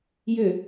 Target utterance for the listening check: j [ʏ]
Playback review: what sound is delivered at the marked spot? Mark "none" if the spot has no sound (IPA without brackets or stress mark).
ʏ